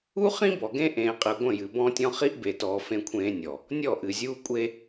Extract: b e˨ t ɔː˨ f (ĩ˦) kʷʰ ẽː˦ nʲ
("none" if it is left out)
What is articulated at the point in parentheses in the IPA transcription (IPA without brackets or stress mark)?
ẽ˦